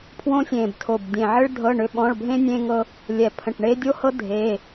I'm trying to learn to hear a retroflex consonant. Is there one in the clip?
yes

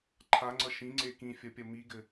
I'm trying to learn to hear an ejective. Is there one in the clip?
no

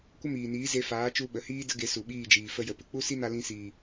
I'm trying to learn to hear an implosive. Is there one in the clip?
yes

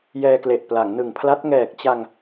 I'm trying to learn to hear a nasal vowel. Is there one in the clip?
no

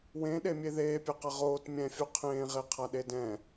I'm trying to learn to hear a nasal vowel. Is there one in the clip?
yes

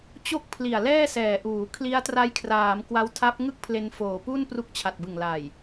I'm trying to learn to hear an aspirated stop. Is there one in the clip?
yes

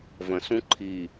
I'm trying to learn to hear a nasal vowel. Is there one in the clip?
yes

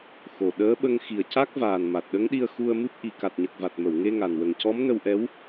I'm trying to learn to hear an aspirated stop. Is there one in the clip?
no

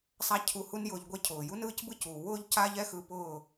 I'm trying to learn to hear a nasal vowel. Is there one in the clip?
no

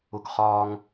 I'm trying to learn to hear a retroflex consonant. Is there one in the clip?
no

